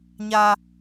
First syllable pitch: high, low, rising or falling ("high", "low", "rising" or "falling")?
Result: high